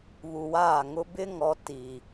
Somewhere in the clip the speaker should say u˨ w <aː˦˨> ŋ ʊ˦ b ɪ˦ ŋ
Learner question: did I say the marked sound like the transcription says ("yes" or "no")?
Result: yes